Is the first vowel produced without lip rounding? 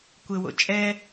yes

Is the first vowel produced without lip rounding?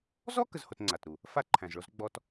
no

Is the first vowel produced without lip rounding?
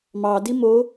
yes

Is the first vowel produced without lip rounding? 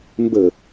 yes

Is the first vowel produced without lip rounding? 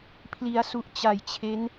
yes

